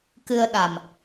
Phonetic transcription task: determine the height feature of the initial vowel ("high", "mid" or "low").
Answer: high